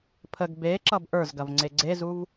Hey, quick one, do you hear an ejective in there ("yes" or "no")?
no